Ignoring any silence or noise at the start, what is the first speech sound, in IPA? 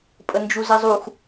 pʼ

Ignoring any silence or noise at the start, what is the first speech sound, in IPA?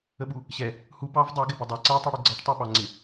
ə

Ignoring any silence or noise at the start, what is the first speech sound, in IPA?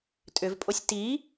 tʼ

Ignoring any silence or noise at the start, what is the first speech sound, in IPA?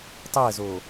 tˤ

